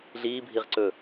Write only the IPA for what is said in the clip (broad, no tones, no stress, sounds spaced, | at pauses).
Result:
ɮ iː bʱ i ʁ ǀ ɵ